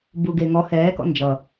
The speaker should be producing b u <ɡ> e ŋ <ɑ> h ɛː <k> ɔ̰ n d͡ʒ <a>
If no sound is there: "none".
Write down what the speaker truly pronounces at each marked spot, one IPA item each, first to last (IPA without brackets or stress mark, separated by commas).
ɡ, ɔ, k, ʌ